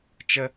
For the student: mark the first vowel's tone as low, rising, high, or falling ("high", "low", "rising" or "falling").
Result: high